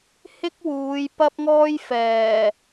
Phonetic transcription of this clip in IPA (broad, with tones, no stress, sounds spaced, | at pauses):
h ɪ˥ k̚ w uː˨˧ j p ɐ˥ p̚ ŋ ɔː˥ j f ɛː˨˩